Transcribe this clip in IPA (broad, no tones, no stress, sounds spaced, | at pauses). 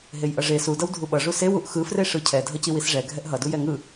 ɦ e j ʔ ʌ ʐ e s u d ʌ w dʱ u ɓ ʌ ʐ u s e w u ʔ x ɯ f r e ʂ ɯ cʰ ɛ dʱ ʌ c i w i s ʐ ɛ ɡʱ ɛ ʔ ɦ ʌ d u j ɛ ŋ ɯ